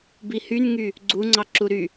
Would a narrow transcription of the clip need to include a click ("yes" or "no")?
yes